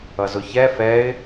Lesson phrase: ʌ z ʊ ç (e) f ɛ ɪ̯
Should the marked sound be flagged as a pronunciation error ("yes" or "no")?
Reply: yes